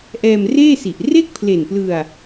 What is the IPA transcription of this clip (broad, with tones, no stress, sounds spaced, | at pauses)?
ʔ ɛː˧ m r eː˥˩ s i˨˩ ʔ r e˥˩ k̚ pʰ l e˨˩ n p l ɯ˧ a̯